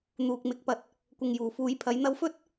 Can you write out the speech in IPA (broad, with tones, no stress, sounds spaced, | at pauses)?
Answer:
n̪ uː˨ k̚ m ɪ˨˥ k̚ p ɐ˧ t̚ | kʷ ɪ˨ ŋ j uː˨˩ f uː˨˧ j pʰ ɐ˨˥ j n̪ ɐ˧ w f ɵ˥ t̚